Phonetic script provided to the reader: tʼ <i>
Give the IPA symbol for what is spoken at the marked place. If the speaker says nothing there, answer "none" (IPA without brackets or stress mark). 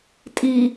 i